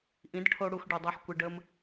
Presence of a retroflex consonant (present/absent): present